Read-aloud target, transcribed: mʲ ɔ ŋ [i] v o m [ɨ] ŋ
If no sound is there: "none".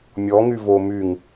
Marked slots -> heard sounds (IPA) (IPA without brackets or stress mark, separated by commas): y, y